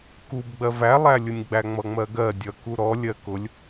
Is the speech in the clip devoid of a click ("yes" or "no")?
yes